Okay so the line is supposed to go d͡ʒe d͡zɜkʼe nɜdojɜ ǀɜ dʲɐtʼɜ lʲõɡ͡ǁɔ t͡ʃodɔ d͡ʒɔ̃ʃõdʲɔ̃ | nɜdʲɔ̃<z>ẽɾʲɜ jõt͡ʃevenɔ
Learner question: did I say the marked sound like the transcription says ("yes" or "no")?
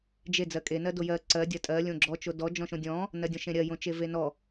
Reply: no